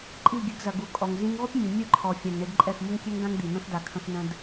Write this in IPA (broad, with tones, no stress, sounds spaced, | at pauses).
ǃʼ i˦˨ ɡʲ ɨ˧ ɡ z ɐ˨ ɡ u˨ kʼ ɔ˨ ŋ z ĩ˧ ŋ ʁʷ ə˦ p mʲ u˨ mʲ ɨ˦ ǃʰ ɔ˨ fʲ ã˨ ŋ ɳ i˧ d ǃʼ ɛ˦˨ x m ʊ˦ ŋ kʲ ɛ˦ ŋ ɡ ã˦ ŋ d̪ i˨ n̪ ə̃˦ x d a˧ kʰ ə̃˦ x n ə̃˦ d